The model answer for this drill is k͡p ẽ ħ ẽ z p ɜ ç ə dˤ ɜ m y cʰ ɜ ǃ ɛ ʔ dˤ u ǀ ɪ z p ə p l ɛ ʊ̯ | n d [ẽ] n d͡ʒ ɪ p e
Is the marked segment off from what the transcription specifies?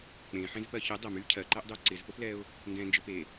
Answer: yes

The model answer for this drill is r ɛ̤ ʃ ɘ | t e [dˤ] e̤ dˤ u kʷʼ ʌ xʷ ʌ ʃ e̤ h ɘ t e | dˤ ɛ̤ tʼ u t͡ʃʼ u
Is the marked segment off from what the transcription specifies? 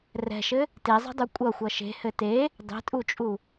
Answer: yes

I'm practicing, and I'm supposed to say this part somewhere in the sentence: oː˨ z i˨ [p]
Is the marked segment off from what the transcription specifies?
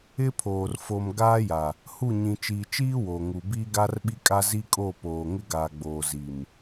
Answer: yes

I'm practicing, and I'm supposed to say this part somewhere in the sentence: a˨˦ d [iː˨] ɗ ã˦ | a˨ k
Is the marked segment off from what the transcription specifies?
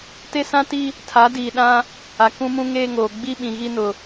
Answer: no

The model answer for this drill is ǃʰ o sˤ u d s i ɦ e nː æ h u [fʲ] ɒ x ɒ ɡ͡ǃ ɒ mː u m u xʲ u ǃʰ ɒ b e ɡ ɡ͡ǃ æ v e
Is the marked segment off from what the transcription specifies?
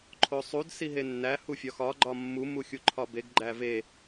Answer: no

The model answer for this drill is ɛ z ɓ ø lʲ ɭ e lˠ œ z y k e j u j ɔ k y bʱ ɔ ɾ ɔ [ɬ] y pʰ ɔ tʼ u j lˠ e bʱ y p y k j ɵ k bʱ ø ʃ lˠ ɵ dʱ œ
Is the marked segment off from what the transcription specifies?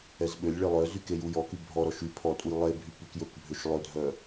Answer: yes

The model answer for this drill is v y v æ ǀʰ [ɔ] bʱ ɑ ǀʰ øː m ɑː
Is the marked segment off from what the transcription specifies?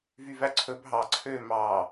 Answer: yes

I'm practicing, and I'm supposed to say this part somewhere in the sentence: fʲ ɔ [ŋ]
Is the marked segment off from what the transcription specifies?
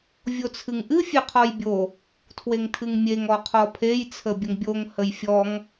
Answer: no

